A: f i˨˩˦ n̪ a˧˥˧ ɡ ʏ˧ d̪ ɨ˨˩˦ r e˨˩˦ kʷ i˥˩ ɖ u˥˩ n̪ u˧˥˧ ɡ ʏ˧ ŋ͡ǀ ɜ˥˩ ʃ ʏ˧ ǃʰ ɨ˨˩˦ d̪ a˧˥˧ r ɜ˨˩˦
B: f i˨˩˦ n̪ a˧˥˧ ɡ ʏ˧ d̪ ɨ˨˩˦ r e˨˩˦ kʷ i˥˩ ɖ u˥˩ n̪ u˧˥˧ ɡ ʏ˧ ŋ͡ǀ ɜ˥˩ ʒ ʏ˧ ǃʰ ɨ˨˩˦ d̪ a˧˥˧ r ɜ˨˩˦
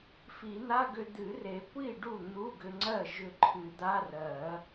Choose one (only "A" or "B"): B